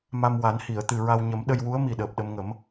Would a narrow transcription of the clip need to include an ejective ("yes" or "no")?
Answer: no